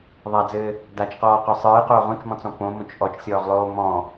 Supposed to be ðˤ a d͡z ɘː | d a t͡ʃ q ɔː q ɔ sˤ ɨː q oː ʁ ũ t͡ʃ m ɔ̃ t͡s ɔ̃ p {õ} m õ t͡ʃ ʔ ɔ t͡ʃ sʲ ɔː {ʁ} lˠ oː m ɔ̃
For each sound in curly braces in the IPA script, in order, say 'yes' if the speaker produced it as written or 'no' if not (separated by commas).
yes, yes